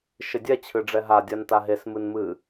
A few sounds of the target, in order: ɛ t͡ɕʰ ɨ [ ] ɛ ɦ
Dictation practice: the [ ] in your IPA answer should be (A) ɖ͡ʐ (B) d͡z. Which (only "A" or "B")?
A